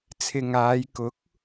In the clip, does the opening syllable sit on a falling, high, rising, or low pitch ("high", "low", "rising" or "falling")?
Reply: low